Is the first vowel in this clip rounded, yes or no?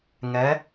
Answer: no